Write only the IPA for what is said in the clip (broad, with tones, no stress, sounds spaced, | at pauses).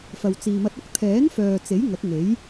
f ɐ˨ w t͡s iː˨ m ɐ˧ t̚ ʊ˥ k̚ t̪ʰ ɛː˨˥ n f œː˨ t͡s e˨˥ j ŋ ɐ˨˥ k̚ ŋ e˨˥ j